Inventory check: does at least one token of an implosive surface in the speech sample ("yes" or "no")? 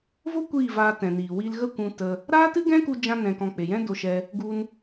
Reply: no